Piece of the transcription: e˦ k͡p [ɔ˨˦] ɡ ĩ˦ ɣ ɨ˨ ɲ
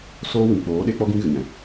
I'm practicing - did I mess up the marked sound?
yes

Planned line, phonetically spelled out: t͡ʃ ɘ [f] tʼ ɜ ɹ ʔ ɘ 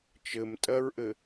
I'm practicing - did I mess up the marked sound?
yes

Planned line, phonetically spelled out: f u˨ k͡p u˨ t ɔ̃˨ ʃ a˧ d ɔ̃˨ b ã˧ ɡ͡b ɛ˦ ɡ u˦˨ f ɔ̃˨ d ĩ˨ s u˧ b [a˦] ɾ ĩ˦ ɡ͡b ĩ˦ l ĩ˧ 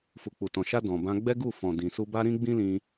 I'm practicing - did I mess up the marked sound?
no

